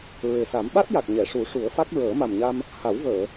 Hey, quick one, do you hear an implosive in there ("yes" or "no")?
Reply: yes